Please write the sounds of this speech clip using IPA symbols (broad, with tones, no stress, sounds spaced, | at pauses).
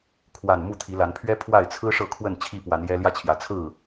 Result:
kʰ w a˨˩ n m u˥˨ t̪ʰ i˨˦ l a˨˦ n pʰ ɥ ɛ˦ pʰ w a˥˨ ɪ̯ t͡sʰ ɹ̩˦ ʂ ɤ˥˨ kʰ w ə˥˨ n t͡ɕʰ i˥˨ p w a˨˦ n j ɛ˦ l j ä˦ t͡ɕʰ j ä˨˦ t͡sʰ ɹ̩˥˨